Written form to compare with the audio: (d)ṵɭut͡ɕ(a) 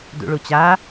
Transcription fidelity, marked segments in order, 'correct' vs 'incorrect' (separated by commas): correct, correct